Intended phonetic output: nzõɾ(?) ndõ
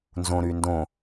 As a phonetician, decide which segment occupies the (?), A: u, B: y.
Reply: B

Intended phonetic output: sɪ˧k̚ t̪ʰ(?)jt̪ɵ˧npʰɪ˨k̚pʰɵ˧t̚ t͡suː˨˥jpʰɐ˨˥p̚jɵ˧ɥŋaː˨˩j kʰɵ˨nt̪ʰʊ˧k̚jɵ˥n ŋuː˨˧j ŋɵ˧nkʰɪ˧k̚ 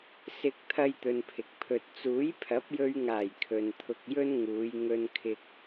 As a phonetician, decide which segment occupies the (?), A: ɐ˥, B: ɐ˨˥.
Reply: A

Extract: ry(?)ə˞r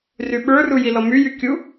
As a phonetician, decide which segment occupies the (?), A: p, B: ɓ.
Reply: B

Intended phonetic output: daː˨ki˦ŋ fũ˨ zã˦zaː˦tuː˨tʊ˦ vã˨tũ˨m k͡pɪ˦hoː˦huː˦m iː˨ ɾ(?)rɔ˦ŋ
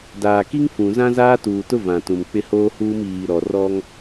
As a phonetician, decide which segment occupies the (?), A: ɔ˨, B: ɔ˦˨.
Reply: A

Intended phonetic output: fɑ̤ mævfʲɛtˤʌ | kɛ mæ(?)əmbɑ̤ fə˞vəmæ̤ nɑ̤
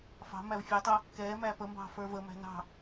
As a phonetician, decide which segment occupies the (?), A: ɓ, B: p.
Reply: B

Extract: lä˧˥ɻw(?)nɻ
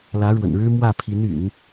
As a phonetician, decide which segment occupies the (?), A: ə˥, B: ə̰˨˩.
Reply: B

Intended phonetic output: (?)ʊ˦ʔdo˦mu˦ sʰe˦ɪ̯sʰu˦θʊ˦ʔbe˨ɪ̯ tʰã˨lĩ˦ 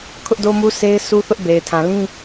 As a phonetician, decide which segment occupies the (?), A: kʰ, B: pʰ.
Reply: A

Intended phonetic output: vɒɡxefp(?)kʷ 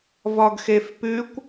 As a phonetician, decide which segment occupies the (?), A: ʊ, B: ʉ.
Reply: B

